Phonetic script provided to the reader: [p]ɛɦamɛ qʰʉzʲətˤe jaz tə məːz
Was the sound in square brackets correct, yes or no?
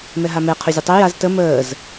no